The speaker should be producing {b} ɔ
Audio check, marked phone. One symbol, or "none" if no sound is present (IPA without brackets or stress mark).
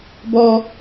b